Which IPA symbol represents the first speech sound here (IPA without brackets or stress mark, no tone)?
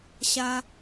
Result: ɕ